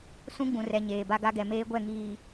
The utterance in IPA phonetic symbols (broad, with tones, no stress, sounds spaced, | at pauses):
s ũ˦ ɡ͡b ũ˨ r ɛ˨ ɲ eː˨ b a˦ ɡ a˦ ɡ ɛ˨ m eː˦ ɡʷ ɛ˦˨ ŋ iː˨